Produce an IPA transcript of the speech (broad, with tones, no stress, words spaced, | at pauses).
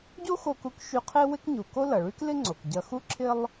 ɟo˥xo˧ku˧k ʃy˧ qʰe˥wɪ˥k ɲu˩ko˥ lɐ˩ɭy˥klɪ˥ŋ͡ǀo˩k ɟɐ˧xu˥ǁʰɪ˥lˠ